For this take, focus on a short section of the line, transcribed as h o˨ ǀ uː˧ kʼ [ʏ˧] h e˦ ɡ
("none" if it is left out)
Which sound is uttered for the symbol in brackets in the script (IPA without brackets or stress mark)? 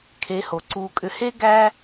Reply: ʏ˧